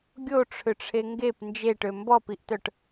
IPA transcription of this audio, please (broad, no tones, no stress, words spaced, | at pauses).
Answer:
ɡʲoʈ͡ʂʰʏʈ͡ʂʰe ŋɡep nd͡ʒeʈø mbɔpiʔtœʈ